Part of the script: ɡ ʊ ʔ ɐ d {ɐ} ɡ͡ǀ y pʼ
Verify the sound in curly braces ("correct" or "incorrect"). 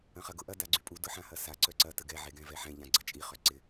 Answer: incorrect